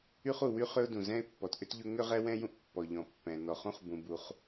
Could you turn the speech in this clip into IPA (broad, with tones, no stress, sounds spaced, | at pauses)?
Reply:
y˥ χ u˩ w y˥ χ ʏ˥ ʊ̯ d ũ˩ z ɛ̃˥ ɪ̯ pː ɔ˩ t ʔ ʏ˥ t ʎ ʊ˥ ŋ ʏ˥ ʁ ɛ˥ w ɛ̃˥ j ũ˥ ʔ pː ɔ˩ ʎ ɔ̃˩ pː ɛ̃˩ n ɔ˩ χ ũ˥ χ b ũ˩ b u˩ χ